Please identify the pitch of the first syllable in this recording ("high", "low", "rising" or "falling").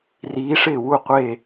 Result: rising